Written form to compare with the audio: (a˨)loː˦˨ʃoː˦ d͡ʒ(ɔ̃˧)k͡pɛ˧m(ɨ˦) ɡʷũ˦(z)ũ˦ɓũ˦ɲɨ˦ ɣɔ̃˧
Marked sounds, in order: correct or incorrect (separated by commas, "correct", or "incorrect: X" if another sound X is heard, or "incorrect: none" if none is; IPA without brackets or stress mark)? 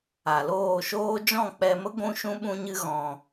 correct, incorrect: ɔ̃˦˨, incorrect: ə˦, incorrect: ʃ